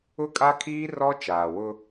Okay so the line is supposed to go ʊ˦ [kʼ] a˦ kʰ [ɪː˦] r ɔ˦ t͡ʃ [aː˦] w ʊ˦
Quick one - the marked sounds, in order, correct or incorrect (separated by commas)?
correct, incorrect, incorrect